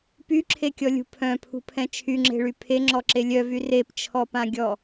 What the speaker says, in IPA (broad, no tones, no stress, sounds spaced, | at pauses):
p y ǁʰ e kʲ ɔ lʲ ṳ pʰ œ̃ pʰ ṳ pʰ ɛ̃ t͡ʃʰ y ŋ͡ǁ e̤ ɭ y pʰ e ŋ͡ǁ ɔ ǁ e lʲ œ v y r e p t͡ʃʰ ɔ p ã ɡʲ ɔ